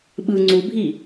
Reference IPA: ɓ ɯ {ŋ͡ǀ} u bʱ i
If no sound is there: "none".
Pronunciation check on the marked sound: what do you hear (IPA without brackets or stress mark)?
ŋ͡ǀ